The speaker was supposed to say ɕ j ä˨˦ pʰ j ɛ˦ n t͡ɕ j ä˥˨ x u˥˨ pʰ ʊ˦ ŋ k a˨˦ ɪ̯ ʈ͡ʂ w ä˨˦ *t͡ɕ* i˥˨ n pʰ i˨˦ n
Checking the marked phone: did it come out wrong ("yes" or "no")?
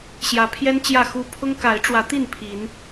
yes